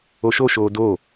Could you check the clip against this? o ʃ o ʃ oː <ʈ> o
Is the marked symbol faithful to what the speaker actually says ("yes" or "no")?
no